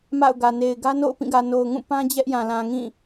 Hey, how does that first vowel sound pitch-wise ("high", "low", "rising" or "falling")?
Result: falling